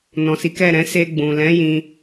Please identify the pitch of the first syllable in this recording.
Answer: low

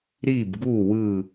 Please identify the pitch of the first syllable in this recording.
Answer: falling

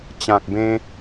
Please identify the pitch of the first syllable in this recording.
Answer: low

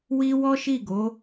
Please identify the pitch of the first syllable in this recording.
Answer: high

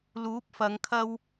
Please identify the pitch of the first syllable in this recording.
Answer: rising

